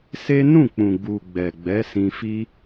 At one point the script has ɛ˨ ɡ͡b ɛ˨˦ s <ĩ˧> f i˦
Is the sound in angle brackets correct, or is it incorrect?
correct